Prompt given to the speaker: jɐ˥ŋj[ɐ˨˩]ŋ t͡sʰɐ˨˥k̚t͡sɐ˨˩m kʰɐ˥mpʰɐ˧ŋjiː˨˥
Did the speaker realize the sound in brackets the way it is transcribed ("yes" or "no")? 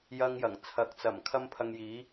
yes